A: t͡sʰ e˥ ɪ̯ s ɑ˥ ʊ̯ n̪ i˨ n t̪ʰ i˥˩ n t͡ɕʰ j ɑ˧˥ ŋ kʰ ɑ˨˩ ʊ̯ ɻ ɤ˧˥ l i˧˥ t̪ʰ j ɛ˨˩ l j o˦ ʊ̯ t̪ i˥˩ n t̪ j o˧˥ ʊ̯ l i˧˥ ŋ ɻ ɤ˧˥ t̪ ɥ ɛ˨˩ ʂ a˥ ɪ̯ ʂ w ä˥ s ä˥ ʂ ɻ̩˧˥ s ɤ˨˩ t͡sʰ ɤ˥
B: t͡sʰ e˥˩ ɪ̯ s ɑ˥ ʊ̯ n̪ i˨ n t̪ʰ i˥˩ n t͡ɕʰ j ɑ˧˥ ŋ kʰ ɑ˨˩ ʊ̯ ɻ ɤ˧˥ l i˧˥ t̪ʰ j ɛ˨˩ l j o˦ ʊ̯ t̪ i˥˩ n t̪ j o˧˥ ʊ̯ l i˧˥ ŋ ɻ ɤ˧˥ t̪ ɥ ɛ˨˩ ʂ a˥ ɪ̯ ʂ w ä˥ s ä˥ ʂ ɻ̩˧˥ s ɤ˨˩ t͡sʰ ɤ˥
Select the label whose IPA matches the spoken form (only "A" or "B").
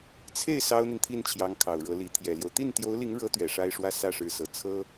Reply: B